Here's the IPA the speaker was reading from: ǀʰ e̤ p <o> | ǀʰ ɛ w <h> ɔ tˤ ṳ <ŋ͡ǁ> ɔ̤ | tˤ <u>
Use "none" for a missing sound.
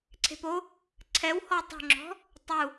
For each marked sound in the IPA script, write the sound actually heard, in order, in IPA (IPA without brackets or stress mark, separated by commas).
o, h, ŋ͡ǁ, u